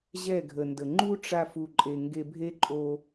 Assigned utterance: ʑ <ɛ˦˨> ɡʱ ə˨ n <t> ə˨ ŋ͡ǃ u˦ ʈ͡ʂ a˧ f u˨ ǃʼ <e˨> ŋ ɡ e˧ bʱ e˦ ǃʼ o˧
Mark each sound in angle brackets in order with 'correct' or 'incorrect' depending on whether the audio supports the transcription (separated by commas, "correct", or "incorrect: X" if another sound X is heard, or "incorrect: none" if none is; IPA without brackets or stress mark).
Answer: correct, incorrect: d, correct